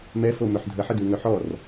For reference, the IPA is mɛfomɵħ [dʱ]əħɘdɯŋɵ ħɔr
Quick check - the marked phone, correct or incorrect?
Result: correct